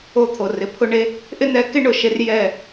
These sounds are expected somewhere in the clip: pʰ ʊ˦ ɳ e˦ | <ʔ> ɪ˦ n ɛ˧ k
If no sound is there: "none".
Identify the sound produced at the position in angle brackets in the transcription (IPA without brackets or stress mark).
ʔ